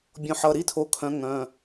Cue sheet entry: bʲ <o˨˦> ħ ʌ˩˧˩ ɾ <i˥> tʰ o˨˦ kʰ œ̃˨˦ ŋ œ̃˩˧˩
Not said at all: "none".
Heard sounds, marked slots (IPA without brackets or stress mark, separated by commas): õ˨˦, i˥